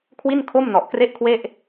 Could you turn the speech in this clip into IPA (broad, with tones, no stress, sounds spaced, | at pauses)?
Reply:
kʰ w i˥˩ n kʰ o˥˩ m n ɔ˨˩ ʔ k r e˥˩ ʔ kʰ w e˥˩ ʔ